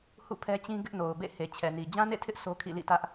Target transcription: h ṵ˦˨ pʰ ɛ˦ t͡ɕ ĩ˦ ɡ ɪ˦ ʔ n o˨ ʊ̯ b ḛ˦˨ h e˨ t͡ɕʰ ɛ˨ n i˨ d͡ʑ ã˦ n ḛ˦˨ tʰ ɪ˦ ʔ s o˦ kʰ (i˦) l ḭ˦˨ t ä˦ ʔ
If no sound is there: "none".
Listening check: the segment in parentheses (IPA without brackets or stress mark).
ḭ˦˨